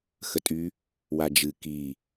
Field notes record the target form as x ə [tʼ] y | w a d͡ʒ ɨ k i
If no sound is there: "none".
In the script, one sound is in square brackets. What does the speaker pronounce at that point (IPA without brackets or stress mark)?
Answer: tʼ